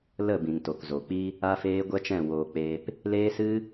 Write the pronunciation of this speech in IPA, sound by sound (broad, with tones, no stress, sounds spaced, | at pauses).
l ə˦˨ b ĩ˨ ŋ t o˨ k z o˨ k͡p i˦ | a˦ f eː˦ ɡʷ ɛ˦ t͡ʃ ɛ̃˦˨ w oː˧ k͡p eː˦ p | l eː˦ s ɨ˦